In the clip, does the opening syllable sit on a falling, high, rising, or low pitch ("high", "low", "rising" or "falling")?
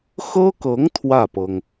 high